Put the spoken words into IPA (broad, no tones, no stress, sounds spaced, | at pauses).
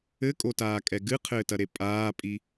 ɘ kʼ o t aː kʼ ɛ ɡ ɨ qʰ ɘː t ɐ ɾ e pʼ aː pʼ i